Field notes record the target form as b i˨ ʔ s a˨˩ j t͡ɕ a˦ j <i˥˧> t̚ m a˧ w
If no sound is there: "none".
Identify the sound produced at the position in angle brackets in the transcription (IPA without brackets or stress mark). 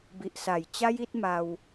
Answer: i˦